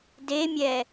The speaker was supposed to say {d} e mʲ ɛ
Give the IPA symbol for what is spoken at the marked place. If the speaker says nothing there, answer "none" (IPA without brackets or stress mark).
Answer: d